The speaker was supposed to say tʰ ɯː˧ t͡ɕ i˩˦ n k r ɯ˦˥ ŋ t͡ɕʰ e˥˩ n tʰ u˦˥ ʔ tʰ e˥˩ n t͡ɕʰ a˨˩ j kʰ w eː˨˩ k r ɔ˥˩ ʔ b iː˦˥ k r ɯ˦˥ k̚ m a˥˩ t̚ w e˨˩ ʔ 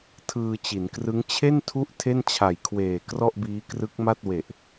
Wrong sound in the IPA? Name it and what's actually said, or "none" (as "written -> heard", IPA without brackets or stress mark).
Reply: none